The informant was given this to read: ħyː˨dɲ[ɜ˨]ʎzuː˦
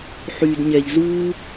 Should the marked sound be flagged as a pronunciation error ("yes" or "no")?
yes